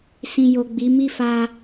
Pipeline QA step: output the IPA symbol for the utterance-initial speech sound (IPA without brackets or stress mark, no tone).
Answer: s